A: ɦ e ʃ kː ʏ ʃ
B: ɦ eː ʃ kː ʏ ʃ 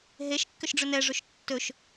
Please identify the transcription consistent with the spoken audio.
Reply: A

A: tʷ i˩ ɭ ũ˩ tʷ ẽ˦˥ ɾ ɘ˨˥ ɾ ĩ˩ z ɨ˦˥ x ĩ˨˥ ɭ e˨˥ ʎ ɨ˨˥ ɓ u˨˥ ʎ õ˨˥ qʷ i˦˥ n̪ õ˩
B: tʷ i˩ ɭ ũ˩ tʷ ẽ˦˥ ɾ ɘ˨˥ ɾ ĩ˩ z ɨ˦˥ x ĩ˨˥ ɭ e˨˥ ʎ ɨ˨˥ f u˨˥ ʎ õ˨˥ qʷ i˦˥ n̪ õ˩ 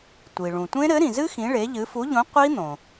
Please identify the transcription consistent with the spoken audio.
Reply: B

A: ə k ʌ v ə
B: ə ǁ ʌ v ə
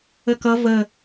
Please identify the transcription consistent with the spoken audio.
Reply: A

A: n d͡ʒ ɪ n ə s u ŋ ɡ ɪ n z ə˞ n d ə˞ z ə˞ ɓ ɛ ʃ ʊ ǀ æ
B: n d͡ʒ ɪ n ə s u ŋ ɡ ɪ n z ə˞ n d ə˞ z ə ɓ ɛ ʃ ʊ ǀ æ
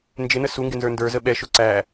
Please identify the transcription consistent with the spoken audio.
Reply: B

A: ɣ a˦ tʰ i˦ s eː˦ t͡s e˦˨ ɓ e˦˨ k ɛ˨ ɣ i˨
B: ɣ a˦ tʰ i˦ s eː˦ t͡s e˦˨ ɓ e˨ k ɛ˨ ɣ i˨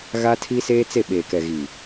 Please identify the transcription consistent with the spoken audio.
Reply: B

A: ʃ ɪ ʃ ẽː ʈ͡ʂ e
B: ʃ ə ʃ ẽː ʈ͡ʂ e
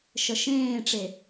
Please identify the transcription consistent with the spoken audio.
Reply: B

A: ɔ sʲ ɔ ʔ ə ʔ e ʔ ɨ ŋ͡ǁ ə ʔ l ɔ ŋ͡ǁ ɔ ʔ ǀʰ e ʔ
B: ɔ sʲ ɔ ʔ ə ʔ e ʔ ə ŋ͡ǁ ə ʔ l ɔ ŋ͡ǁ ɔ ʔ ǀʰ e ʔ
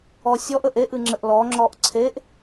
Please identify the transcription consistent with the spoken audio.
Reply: A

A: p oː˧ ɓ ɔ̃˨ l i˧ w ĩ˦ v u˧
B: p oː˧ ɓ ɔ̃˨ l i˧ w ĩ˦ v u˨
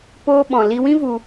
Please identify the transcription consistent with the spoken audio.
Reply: A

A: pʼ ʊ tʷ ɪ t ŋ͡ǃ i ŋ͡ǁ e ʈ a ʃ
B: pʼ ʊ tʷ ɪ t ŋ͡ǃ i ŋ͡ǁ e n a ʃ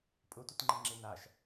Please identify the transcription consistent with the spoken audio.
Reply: B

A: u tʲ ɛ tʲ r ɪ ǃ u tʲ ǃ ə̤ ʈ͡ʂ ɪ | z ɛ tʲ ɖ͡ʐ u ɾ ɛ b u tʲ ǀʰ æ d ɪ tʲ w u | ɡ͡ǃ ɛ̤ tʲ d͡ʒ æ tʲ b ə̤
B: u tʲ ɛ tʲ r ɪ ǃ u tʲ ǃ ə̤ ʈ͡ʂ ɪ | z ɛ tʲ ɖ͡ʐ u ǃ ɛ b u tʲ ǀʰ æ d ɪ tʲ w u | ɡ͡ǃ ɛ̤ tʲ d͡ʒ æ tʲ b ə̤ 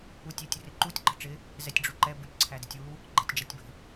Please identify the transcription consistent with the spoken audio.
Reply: B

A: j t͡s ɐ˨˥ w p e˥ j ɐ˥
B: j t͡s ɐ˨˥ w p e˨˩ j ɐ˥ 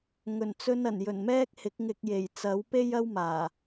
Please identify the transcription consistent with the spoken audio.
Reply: A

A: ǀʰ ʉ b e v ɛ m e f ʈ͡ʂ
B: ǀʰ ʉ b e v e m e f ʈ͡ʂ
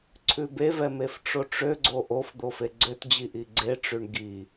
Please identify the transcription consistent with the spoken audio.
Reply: A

